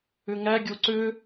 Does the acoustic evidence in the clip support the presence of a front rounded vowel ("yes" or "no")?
yes